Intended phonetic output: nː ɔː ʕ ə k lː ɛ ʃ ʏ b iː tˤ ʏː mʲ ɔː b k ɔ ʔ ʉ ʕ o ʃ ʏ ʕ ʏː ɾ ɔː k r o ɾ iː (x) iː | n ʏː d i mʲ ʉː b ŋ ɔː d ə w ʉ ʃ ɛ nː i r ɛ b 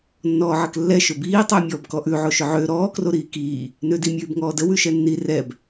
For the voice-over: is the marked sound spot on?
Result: no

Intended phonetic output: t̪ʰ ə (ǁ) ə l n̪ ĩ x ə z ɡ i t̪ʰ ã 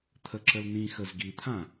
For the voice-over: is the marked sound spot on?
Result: yes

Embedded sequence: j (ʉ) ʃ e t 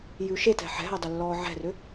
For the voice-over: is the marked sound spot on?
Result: yes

